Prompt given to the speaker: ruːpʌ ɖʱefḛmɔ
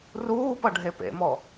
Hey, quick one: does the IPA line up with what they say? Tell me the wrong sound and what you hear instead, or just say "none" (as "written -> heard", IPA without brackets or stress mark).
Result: f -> p